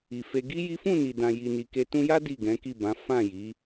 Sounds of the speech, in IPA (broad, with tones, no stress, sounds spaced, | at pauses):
i˨ f e˧ ɡ i˦ j i˦ f ũ˦˨ n i˨ d ã˨ j i˨ n i˨ k e˧ t ũ˧ j a˦ d i˦˨ ɡ ɛ̃˨˦ k i˦˨ b ã˨˦ f ã˦˨ j i˨˦